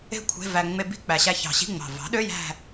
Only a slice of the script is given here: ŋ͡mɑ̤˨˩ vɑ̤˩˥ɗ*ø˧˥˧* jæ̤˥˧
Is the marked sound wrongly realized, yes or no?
no